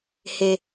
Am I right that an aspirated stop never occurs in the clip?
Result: yes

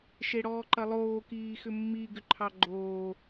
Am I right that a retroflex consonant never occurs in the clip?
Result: no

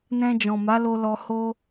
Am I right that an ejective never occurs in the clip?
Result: yes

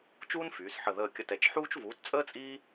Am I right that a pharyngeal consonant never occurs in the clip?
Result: no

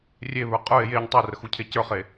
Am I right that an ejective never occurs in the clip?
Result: no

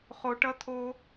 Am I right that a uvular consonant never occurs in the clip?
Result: no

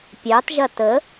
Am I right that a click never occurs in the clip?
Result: yes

